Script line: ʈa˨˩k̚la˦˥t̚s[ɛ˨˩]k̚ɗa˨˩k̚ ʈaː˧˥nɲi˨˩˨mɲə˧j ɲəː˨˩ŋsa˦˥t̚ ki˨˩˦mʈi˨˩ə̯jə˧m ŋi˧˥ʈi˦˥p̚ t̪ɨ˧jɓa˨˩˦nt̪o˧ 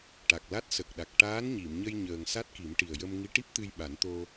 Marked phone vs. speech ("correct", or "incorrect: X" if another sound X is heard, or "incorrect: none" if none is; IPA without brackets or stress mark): incorrect: ə˨˩